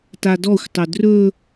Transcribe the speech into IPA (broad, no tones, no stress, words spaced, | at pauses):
tadɔxʷtˤɵ drɵ